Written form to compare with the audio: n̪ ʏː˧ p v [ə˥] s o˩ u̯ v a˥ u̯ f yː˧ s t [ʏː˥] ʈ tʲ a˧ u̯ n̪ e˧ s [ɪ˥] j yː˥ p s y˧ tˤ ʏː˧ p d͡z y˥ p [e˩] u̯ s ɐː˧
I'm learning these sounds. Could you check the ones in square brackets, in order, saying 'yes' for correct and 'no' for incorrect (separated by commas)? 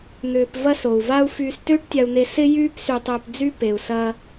no, yes, yes, yes